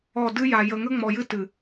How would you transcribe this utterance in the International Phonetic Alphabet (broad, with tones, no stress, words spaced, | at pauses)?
ɔ˦˨ dɨ˦ja˨ jə˨ŋə˦ ŋ͡mɔ˨jɨ˦ tɨ˨